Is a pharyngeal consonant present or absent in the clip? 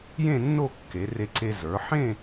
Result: present